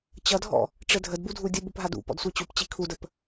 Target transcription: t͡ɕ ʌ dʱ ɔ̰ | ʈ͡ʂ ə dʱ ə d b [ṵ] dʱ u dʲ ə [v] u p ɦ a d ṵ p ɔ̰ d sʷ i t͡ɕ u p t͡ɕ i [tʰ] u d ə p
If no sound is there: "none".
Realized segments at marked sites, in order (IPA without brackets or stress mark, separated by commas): u, b, kʰ